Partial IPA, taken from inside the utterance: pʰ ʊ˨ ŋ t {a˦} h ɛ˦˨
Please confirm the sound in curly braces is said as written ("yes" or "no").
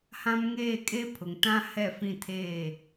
no